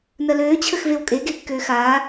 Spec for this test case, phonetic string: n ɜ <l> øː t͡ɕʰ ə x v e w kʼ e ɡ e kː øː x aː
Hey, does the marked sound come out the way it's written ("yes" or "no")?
yes